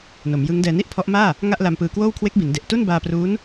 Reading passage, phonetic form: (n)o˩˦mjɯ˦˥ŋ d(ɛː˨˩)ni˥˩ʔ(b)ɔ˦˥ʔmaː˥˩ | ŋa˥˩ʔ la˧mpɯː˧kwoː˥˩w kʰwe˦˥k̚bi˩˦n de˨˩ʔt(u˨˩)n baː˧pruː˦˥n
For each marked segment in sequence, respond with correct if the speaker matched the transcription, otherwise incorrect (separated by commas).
correct, incorrect, incorrect, incorrect